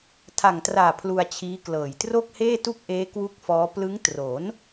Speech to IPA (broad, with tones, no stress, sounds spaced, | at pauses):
tʰ a˨˩ ŋ t r aː˨˩ pʰ l u˧ a̯ t͡ɕʰ iː˦˥ k l ɤː˨˩ j t r o˥˩ k̚ h eː˥˩ t u˥˩ k̚ ʔ eː˦˥ k w u˥˩ k̚ f ɔː˦˥ p l ɯ˦˥ ŋ t r o˩˦ n